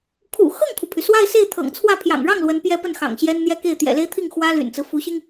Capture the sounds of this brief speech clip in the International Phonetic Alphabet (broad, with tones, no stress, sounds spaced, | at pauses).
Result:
kʰ ṵ˨˩ x ɤ˥˩ ŋ kʰ u˩ pʰ y˩ s w a˥˧ ɪ̯ s e˥˩ ɪ̯ t̪ʰ ɤ̰˨˩ ŋ t͡sʰ w ä˥˩ pʰ j ɑ̰˨˩ ŋ ɻ ɑ˥˩ ŋ l w ə˧˥ n p j ɛ˥ p ə˥˩ n x ɑ̰˨˩ ŋ ɕ j ɛ˥ n n̪ j ɛ˥ k e˥˩ ɪ̯ t̪ j ɛ̰˨˩ l e˥ ɪ̯ t̪ʰ i˥˩ ŋ x w ä˥ l y̰˨˩ n t͡s ɹ̩˦ f u˧˥ ɕ i˧ ŋ